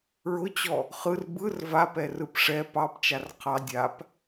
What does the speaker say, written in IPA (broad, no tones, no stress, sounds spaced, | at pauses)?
ɹ ʊ t͡ɕ ɔ | χ ɯ r b ɯ r v a p ɛ r ɯ p ʂ ɛ p ɑ p t͡ʃ a r qʰ ɑ dʲ a p